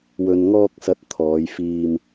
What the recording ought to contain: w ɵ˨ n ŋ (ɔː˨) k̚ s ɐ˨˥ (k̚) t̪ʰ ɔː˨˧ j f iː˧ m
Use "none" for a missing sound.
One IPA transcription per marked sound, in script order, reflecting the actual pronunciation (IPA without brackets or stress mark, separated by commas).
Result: ɔː˧, t̚